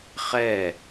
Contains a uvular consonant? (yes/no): yes